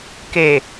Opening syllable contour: low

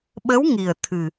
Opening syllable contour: rising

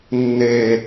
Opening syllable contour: high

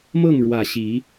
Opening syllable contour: falling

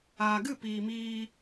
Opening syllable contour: low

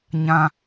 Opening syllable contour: high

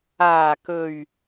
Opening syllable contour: low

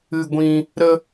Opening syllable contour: high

